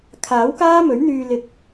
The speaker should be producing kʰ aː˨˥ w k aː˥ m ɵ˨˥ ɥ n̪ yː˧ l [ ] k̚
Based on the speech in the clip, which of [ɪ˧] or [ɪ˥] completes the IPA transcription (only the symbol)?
ɪ˧